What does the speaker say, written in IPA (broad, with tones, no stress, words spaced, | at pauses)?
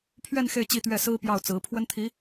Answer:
pʰɥɛ˥˧n xe˥˧ɪ̯t͡ɕi˥˧t̪ɥɛ˥˩ sɹ̩˥pjɑ˥˩ʊ̯t͡sɹ̩˧˥ pʰwə˥nt̪ʰi˧˥